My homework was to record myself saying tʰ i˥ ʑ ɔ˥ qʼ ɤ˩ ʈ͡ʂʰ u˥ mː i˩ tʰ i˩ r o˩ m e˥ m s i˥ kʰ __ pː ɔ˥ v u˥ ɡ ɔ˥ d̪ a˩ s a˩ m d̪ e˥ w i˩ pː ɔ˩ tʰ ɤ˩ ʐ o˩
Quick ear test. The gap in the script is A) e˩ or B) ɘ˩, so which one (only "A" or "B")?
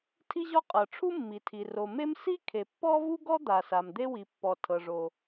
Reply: A